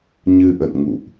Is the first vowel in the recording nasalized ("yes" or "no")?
no